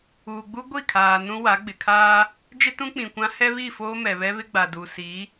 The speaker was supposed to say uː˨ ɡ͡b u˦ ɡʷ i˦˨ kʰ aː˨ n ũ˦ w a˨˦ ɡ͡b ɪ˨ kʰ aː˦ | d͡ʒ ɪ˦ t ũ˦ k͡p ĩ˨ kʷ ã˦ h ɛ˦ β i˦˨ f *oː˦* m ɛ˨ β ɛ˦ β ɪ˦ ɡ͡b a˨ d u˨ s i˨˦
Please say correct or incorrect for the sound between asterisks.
correct